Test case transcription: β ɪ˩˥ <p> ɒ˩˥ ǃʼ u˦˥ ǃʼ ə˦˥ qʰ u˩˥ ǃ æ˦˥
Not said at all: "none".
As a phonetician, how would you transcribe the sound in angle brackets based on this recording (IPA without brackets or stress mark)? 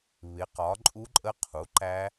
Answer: q